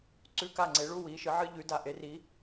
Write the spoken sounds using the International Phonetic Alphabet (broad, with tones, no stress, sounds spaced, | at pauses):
ǀ ʉ˧˥ k a˦˨ ŋ͡ǀ e˩˥ ɭ u˧˥ w i˩˥ ʃ ɨ˩˥ ʕ ɨ˧˥ ʎ ʉ˩˥ d a˩˥ ʔ e˩˥ r i˧˥